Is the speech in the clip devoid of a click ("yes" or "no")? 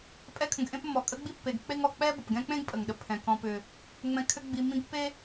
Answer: yes